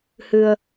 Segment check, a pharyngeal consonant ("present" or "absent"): absent